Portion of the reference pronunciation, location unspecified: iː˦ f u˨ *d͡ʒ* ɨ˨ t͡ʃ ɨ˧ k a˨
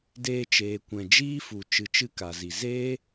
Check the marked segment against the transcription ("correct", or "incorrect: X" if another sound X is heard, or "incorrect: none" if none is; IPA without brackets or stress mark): incorrect: t͡ʃ